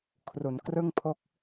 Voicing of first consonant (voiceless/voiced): voiceless